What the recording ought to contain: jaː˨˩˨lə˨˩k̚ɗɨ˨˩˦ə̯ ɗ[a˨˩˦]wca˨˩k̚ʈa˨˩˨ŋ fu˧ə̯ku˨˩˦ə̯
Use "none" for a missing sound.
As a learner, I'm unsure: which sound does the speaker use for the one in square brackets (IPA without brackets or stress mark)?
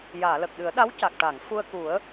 a˧˥